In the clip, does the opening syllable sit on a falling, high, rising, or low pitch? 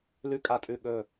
low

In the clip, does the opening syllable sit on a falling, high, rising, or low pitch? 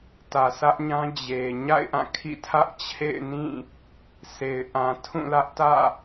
low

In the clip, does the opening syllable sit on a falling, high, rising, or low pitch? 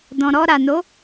low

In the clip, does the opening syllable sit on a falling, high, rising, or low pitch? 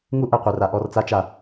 high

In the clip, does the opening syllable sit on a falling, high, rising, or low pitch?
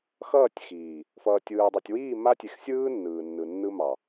falling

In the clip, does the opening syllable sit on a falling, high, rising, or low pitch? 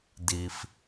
low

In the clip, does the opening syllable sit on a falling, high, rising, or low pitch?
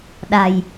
low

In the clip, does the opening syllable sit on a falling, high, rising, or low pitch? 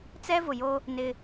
high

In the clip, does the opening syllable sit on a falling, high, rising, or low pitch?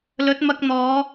rising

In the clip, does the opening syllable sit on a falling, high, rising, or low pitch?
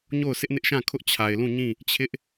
falling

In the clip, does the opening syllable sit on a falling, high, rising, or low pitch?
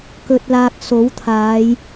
low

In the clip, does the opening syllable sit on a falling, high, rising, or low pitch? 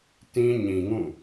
high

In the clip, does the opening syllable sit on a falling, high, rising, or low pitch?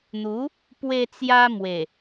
rising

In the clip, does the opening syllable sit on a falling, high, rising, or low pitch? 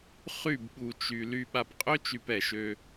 falling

